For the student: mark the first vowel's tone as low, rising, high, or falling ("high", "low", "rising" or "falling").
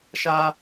high